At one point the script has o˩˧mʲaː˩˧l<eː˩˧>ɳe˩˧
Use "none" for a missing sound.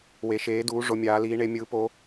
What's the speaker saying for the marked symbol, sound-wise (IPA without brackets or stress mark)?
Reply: iː˩˧